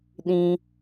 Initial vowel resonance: nasal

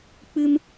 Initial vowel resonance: oral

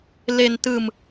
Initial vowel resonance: oral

